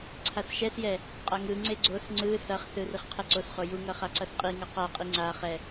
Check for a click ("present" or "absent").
present